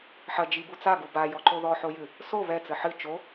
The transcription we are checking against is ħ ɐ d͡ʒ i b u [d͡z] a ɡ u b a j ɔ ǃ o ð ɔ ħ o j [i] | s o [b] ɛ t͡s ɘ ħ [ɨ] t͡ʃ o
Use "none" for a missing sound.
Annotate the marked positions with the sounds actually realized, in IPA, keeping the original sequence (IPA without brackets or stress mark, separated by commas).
t͡s, ɨ, β, ɨ